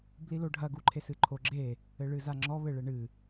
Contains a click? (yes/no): yes